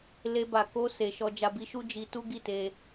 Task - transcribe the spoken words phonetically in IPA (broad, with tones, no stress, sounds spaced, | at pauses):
l e˧ b a˨ k o˧ s e˨ ʃ ɔ˧ d͡ʒ a˧ b i˧ ʃ u˦ d͡ʒ i˧ t u˦ ɡ i˦˨ t e˧